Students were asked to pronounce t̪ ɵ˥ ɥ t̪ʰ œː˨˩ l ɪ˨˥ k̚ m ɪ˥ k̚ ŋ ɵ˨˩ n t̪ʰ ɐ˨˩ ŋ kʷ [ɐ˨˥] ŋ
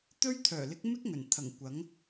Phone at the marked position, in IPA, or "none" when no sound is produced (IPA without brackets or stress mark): ɐ˨˥